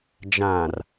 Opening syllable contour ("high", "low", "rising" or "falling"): low